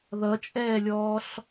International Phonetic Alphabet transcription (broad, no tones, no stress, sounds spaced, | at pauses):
ð ʌ t͡ʃʼ ɛː lʲ ɔː ɬ